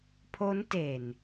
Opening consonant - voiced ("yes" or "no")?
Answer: no